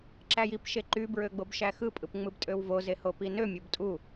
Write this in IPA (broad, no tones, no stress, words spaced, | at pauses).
ǁæjip ʃeǃy bɹøɡ͡bobʃæxɯ pʼɯpŋ͡mɯbtʼøwvo zehopinø mʲobtʼu